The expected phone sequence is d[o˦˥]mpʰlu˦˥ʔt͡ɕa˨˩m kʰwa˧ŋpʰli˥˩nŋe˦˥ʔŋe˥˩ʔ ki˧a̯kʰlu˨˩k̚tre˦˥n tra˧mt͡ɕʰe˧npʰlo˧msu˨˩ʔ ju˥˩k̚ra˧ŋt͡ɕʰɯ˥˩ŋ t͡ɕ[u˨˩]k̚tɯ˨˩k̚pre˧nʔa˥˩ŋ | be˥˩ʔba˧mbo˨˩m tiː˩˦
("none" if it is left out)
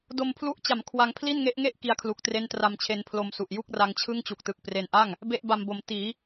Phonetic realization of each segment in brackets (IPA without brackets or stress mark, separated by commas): o˧, u˨˩